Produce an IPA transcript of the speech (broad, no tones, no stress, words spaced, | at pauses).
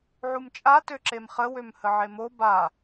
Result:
ʕumt͡ʃʼa tøǁemχə wømhəʕemo ba